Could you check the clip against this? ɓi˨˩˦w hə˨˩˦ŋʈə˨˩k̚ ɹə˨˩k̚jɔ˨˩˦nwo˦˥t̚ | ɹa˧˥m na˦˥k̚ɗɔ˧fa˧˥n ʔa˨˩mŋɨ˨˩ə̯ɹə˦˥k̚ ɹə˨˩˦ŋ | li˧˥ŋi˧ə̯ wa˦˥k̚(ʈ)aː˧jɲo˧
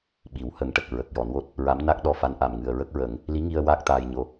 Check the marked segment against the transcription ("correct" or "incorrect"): incorrect